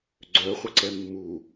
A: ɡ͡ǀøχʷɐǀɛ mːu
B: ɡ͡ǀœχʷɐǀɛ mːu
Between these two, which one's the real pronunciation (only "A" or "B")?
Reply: B